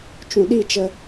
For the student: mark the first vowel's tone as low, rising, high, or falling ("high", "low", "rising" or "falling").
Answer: low